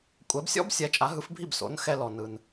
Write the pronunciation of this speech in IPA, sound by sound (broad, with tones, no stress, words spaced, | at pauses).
kʷʼɛ˩˥bsʲɔ̰˥b sʲɛ˩˥t͡ʃʼa˩˥ɦɯ˩˥fbʱi˥˩b so̰˩˥nxɛ˧lɔ˩nɯ˩n